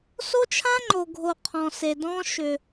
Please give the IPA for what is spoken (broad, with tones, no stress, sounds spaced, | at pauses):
s o˦ t͡ʃʰ ã˦ ŋ͡ǃ o˨ ɡʱ o˨ qʰ ɔ̃˨ s e˨ d ɔ̃˦ ʃ ʏ˨